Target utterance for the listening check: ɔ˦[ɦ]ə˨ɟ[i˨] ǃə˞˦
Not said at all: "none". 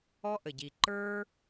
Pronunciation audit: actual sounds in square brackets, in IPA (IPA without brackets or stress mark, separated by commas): ʔ, i˨